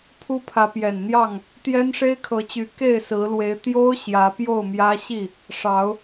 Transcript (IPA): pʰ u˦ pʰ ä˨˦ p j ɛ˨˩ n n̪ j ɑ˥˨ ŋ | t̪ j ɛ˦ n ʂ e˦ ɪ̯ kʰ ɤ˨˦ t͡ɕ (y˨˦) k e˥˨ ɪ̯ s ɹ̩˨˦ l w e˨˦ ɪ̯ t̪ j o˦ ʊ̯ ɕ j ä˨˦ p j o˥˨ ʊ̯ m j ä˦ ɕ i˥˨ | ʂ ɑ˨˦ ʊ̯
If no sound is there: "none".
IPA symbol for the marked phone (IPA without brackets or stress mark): y˨˦